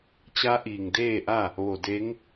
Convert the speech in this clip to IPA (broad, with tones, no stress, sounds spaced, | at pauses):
t͡ɕ a˧˥ ʔ iː˧˩ ŋ d eː˥˨ ʔ a˥˨ | ʋ o˧˩ d e˧˥ ŋ